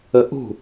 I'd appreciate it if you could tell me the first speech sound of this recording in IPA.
ə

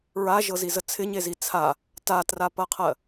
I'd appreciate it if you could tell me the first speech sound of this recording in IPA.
ɹ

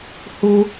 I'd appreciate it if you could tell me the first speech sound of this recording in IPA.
h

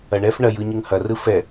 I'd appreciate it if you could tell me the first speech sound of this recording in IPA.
ɐ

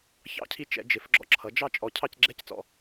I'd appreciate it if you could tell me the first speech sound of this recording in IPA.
ç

